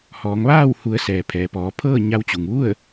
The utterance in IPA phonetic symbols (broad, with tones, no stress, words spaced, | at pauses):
hɔː˩˧ŋʋaː˥˨w hu˩˧ə̯ sɛː˩ pʰɛː˩pɔː˩˧pʰɤː˥˨ ɲa˧wt͡ɕu˩ŋʋu˥˨ə̯